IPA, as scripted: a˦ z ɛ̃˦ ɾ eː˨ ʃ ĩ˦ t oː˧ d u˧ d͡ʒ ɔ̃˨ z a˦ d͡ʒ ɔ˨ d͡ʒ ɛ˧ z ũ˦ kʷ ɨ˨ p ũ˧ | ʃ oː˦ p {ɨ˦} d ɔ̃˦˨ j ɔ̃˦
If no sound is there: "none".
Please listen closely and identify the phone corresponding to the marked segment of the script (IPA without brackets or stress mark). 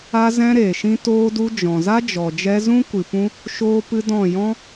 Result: ɨ˦